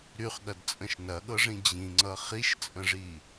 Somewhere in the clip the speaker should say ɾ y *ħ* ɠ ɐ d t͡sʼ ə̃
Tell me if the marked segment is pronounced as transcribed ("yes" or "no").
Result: no